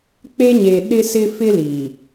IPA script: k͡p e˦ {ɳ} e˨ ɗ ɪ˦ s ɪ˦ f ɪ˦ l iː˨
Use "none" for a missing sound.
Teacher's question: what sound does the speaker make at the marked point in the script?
ɲ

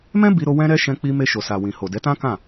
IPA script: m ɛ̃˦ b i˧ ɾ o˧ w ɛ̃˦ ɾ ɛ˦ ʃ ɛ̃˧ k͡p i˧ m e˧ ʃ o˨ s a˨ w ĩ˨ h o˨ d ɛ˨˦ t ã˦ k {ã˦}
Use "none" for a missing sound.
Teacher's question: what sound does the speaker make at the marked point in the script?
ã˦˨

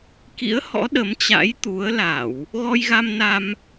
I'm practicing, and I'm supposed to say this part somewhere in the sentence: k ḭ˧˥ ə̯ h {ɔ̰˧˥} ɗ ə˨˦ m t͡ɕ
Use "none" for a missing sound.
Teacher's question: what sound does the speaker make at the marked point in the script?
ɔ̰˧˥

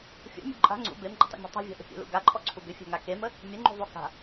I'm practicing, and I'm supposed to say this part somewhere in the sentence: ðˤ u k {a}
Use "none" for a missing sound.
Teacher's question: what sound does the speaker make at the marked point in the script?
a̤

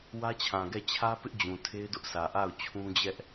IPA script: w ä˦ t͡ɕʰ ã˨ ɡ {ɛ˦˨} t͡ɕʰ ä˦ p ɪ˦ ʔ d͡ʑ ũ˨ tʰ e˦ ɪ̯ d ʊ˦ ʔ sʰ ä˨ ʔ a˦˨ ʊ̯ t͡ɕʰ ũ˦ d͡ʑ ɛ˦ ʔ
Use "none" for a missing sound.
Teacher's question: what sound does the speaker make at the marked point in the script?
ɛ˦˨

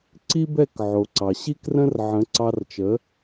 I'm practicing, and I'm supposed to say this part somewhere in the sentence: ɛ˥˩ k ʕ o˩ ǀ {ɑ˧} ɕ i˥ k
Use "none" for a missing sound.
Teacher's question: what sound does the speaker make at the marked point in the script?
ɑ˩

